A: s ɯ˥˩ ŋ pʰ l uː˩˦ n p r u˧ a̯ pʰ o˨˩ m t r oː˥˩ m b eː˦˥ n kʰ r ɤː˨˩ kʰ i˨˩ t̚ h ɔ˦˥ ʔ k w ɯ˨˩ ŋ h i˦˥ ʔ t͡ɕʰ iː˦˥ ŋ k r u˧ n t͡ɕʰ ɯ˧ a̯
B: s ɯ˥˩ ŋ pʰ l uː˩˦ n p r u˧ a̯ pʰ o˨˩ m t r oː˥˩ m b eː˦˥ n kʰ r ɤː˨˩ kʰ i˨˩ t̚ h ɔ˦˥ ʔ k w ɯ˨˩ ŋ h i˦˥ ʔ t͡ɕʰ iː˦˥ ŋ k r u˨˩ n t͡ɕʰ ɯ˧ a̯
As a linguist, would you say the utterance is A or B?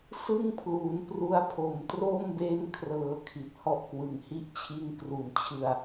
B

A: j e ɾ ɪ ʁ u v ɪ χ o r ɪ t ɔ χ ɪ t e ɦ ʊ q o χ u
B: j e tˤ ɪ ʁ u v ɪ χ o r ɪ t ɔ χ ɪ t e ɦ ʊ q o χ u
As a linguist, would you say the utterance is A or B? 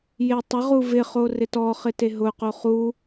B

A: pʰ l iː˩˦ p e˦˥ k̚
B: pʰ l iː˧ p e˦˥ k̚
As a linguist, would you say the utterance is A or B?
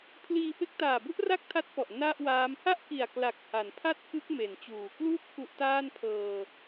B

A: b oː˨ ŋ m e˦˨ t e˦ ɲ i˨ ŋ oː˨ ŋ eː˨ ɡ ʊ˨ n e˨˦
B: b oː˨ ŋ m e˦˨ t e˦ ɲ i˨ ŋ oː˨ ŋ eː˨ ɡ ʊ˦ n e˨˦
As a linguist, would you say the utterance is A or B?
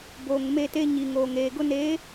B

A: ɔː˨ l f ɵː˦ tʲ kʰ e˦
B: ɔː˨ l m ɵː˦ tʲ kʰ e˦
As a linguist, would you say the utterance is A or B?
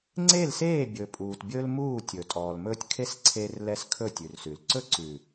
B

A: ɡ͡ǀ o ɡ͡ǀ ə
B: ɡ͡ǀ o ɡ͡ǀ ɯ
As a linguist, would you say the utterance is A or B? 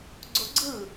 B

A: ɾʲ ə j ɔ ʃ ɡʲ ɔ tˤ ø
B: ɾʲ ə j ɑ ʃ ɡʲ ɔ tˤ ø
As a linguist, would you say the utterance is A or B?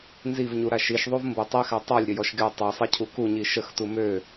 A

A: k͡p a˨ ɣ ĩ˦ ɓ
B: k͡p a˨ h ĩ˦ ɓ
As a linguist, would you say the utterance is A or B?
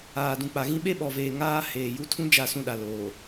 A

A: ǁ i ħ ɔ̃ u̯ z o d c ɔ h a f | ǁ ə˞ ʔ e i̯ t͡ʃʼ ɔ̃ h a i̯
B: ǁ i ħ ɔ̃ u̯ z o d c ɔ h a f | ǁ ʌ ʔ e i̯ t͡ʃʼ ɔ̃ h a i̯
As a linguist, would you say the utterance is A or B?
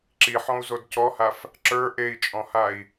A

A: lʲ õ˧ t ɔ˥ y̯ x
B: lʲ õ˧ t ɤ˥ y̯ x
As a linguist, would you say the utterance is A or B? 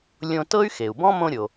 B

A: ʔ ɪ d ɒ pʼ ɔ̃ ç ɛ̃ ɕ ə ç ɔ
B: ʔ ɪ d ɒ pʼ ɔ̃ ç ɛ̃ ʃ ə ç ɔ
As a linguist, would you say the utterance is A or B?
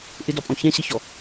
A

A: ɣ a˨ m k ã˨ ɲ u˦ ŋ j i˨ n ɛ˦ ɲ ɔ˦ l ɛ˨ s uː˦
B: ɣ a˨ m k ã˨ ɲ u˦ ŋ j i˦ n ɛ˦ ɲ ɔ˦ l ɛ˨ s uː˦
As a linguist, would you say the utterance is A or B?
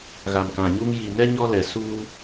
A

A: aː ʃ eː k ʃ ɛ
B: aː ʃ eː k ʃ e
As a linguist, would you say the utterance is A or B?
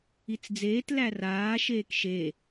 B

